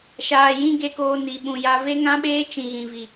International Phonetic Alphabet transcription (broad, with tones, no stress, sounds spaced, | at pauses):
ʃ aː˨ j ĩ˦ ɡ e˧ k oː˧ n i˨ ɓ ũ˨ j a˧ v e˦ ŋ ã˦ ɓ eː˦ t͡ʃ ĩ˨ ɣ ĩ˨ v i˨